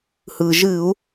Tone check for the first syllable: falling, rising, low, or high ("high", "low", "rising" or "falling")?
low